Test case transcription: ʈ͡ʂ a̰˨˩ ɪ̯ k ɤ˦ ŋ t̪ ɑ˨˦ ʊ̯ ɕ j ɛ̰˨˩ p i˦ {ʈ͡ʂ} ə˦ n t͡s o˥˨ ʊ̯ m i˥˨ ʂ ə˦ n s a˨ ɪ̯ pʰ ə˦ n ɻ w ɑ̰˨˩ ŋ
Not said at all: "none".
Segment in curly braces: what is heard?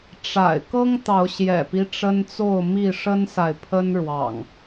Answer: ʈ͡ʂ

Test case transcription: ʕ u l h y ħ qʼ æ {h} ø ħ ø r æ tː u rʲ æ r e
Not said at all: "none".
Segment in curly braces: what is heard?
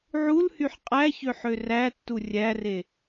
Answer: ç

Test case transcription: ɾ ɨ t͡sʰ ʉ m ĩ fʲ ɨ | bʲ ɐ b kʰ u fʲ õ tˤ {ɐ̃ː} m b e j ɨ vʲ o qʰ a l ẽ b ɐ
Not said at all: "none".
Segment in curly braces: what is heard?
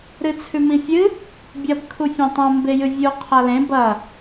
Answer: ɐ̃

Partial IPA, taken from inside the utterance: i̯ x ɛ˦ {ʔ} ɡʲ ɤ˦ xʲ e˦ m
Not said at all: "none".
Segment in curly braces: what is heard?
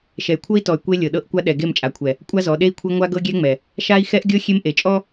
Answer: ʔ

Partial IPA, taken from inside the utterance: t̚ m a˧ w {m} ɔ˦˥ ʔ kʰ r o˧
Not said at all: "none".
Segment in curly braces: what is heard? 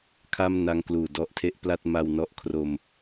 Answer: n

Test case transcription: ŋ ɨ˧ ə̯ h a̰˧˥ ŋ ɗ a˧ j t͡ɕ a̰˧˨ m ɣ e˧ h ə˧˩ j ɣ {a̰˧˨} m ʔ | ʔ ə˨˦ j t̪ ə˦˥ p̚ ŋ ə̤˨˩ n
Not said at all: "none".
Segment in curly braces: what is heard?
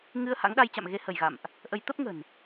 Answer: a̰˧˨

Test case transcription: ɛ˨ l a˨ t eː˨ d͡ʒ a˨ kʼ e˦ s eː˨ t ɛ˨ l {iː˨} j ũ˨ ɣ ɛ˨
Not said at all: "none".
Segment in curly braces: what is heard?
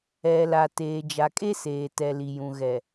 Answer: i˨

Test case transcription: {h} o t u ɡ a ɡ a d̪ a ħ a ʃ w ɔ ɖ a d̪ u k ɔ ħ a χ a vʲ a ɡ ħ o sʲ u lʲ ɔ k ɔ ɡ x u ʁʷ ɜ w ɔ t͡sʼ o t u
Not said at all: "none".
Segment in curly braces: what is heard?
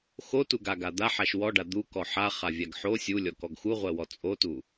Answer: x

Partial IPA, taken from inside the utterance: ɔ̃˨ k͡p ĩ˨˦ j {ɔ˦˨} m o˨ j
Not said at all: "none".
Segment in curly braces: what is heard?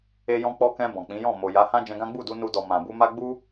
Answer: ɔ̃˦˨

